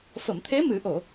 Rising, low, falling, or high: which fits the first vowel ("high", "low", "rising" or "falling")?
low